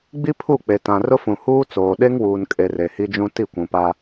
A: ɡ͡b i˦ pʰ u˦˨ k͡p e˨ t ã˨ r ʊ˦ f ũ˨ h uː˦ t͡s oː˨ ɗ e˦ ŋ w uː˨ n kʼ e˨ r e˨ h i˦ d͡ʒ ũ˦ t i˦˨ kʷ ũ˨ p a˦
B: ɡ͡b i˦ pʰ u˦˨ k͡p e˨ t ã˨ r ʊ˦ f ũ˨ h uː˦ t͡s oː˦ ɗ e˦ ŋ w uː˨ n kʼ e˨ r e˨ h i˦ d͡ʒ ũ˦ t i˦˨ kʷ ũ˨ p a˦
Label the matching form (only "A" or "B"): A